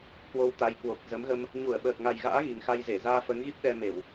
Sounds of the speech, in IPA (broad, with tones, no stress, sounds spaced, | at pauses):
k w o˧ w t̪ a˨˦ j k w o˨˩ k̚ z ə˨˦ m ɣ ə˧ m | ɲ u˧˩ ə̯ ɓ əː˨˩ k̚ ŋ a˨˩ j ɣ a̰ː˧˥ ɣ i˨˩ ŋ x a˧ j z e˧˩ z aː˧ f əː˨˦ ŋ ɣ i˦˥ p̚ ɗ ɛ˧ m e˧˩˨ w